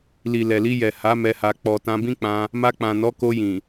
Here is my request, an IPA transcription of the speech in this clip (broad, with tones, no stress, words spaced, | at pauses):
li˨lɛ˨li˧jɛ˨ ha˨˦ mɛ˧ha˧ k͡pɔ˨tã˧bĩ˦k͡pã˧ | ma˧k͡pã˨nɔ˨˦ ko˧jĩ˨